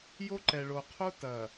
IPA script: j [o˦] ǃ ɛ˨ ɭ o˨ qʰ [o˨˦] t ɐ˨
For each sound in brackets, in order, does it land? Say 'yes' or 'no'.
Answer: yes, no

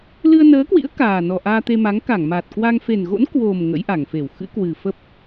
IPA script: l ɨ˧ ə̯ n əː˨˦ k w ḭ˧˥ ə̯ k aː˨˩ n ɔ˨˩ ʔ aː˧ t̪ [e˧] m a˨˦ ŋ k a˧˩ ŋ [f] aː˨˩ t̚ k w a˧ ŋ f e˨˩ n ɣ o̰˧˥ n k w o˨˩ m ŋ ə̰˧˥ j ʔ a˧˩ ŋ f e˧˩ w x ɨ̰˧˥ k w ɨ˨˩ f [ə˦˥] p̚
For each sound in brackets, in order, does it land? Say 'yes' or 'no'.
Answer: yes, no, yes

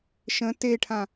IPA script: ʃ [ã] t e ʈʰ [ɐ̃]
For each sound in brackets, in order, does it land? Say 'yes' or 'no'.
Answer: no, no

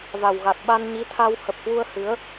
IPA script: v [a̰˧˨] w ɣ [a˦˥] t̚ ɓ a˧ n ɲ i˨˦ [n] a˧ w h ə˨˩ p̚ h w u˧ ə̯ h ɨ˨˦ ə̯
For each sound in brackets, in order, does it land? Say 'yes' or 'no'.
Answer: no, no, no

